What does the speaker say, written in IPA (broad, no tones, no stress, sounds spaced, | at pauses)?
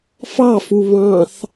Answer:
f ɑ f u β ɑ̃ θ